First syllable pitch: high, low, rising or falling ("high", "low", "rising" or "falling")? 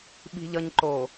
low